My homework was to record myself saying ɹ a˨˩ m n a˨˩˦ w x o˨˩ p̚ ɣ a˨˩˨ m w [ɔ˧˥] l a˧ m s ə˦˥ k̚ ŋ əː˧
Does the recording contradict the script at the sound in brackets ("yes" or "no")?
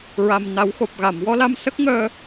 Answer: no